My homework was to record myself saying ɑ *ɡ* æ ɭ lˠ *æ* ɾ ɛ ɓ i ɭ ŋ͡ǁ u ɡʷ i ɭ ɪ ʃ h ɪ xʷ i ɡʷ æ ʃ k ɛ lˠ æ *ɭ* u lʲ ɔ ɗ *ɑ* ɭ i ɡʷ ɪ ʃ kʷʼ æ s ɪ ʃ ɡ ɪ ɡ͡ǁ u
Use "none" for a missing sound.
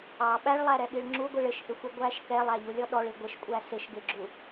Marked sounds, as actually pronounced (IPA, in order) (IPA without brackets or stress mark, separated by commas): ɓ, æ, ʎ, ɔ